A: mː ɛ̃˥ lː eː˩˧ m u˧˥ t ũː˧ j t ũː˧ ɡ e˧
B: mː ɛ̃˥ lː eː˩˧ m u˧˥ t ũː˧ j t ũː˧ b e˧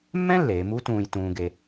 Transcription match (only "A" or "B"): A